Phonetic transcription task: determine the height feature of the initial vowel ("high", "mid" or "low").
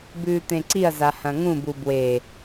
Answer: high